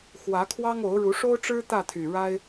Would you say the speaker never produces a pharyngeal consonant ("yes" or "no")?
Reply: yes